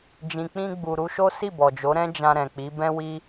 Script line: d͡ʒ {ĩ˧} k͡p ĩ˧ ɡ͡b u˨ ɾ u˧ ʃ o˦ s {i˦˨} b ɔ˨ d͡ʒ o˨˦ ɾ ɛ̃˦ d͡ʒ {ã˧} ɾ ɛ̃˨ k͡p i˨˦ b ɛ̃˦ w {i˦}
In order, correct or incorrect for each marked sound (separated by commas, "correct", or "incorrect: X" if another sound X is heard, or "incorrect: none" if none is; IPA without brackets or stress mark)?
incorrect: ĩ˨, correct, correct, correct